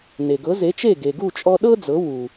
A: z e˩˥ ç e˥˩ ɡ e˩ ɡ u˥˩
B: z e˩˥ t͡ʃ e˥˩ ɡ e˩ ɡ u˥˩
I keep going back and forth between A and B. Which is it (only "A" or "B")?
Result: B